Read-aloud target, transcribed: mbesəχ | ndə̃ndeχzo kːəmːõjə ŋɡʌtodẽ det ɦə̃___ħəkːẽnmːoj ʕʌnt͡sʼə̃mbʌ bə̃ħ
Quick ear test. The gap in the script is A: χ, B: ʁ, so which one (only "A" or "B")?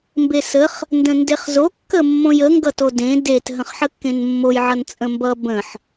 A